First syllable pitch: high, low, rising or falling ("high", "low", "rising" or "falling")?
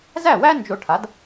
falling